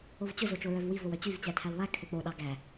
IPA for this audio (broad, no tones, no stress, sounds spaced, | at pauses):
o v t͡ɕ ɵ z o t͡ʃ o ɹ œ v w i v o w œ t͡ɕ y v t͡ɕ æ tʰ æ w lˠ æ kʰ ø k͡p o ɗ ɑ ɡ æ